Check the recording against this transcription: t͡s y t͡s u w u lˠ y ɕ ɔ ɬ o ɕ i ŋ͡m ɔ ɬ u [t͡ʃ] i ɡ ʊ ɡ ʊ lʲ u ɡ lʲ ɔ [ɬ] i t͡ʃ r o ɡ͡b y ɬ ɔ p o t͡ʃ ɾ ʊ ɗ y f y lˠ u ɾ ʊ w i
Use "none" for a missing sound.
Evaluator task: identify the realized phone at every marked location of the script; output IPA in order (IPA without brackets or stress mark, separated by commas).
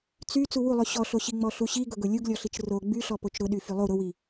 ɕ, ɬ